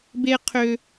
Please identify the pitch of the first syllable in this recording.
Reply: high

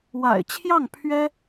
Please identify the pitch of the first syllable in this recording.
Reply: low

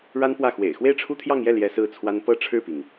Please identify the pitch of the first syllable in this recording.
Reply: high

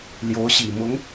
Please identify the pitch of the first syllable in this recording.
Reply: rising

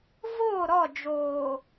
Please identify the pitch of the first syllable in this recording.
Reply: falling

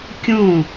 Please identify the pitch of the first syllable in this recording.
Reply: falling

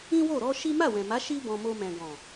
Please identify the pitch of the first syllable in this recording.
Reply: high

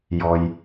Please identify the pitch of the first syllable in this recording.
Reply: low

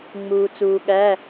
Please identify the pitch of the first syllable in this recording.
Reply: low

